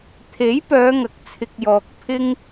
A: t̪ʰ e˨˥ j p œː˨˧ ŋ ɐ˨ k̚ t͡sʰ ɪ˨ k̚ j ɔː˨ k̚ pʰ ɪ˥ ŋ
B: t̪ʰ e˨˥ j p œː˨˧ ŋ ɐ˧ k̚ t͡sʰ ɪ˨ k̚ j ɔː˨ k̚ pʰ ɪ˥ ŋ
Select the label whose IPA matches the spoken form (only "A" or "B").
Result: A